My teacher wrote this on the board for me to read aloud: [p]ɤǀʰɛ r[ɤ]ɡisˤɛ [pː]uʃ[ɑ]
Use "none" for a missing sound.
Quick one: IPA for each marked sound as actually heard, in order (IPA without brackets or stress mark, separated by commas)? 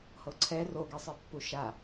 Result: h, o, pː, a